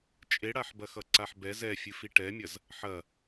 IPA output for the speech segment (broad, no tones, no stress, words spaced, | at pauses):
t͡ʃʼeɽaħbɐxʌ ǀaħbɛz ɛfʲɨ fiʈɛmʲɐz | ħɐ